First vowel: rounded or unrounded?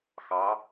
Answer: unrounded